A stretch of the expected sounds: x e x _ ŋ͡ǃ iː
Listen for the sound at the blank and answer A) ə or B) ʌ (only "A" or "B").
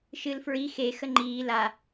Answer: A